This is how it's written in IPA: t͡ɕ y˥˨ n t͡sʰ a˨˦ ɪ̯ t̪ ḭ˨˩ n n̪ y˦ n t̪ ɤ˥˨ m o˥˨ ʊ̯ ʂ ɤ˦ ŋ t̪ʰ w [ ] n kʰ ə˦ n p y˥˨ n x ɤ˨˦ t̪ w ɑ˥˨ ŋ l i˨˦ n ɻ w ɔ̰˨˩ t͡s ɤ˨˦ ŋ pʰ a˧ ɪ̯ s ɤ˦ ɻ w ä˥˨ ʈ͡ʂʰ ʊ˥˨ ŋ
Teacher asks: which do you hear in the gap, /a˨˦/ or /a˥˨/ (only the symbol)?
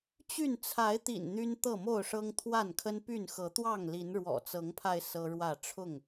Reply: a˥˨